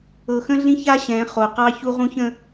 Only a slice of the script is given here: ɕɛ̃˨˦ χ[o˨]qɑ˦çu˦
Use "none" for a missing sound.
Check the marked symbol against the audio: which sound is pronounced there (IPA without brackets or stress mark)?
o˨